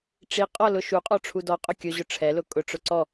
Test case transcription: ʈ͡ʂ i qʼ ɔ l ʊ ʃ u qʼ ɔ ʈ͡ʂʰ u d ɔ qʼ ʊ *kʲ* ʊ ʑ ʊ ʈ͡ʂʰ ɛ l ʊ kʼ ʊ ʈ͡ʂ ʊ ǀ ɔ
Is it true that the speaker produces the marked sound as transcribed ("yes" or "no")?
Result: yes